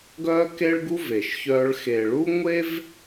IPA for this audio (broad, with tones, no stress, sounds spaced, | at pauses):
ɡ œː˦ k e˦ ɭ ɡ u˦ v eː˨ ʃ ç œː˦ ɭ x eː˨ ɭ u˦ ŋʷ e˦ v